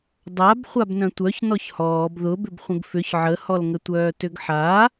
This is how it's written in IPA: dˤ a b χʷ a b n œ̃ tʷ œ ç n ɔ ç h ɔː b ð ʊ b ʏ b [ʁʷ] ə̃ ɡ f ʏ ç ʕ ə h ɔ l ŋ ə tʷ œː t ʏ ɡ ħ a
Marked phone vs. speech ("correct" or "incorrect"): incorrect